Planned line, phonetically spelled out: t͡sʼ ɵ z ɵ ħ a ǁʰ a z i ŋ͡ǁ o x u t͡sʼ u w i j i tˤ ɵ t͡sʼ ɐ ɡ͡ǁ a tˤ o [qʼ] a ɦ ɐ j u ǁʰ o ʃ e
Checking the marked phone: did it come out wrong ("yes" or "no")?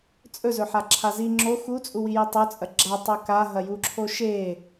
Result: yes